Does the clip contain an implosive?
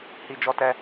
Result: no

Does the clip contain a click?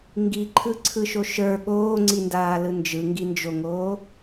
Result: yes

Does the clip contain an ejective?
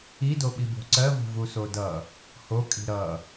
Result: yes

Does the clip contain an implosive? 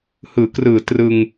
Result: no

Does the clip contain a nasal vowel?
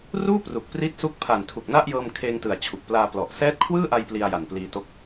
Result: no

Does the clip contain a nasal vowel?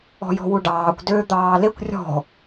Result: no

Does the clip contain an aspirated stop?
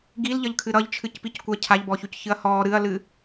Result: yes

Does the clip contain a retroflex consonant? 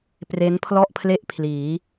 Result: no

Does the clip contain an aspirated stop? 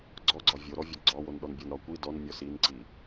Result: no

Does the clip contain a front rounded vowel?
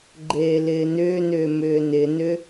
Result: yes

